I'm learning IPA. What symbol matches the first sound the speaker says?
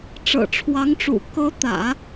ʈ͡ʂ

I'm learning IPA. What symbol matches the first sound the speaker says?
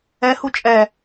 ɛ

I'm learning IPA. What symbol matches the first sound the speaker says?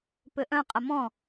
p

